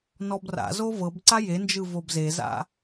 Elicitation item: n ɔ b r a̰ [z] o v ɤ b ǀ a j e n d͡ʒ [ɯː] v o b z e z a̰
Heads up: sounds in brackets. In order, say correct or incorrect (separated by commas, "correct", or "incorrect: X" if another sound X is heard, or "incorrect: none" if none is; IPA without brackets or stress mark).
correct, incorrect: ɯ